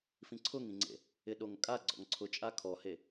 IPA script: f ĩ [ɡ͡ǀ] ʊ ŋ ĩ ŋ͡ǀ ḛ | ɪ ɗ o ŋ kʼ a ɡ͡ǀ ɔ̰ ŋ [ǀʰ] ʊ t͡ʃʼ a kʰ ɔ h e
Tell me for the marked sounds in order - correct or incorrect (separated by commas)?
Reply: incorrect, correct